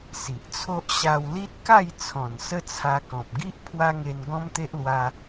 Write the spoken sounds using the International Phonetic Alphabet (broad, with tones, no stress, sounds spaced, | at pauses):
s i˨ ʔ t͡sʰ o˦ ʔ ɕ a˧ w l i˦ t̚ k a˥˧ j t͡sʰ ɔ̃˨˩ n s ə˦ t͡sʰ a˧ k ɔ̃˨ p̚ ɡ i˦ ʔ pʰ w a˦ ŋ e˧ n ɡ ɔ̃˦ m t̪ e˦ ʔ l w a˧